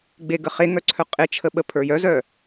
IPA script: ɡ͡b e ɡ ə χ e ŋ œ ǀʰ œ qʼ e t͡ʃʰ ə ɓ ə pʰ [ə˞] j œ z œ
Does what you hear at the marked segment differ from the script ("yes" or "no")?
no